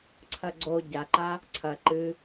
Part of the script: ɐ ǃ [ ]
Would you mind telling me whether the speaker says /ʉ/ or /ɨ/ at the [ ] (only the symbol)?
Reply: ɨ